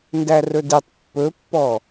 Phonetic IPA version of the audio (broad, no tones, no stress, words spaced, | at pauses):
ndærɵditˤ pːɵpːɔ